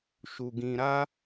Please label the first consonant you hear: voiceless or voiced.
voiceless